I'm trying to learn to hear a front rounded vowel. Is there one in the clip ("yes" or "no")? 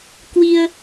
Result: no